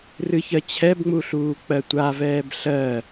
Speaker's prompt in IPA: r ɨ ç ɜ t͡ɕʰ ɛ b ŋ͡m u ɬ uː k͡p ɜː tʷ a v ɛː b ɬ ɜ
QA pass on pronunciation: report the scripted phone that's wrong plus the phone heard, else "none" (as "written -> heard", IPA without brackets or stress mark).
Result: ɜː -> ɜ